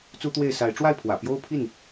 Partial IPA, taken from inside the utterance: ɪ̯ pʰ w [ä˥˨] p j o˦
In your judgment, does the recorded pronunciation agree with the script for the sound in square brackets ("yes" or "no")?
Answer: no